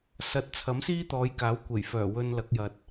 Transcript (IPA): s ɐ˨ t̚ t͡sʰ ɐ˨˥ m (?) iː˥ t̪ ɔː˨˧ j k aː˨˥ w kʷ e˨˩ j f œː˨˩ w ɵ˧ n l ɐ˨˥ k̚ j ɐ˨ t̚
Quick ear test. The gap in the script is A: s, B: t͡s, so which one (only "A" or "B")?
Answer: A